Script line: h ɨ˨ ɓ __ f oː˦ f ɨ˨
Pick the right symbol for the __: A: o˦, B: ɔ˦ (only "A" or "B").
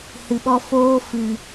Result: B